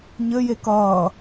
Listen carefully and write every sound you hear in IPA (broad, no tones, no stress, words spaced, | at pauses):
ɲɘ jekʌː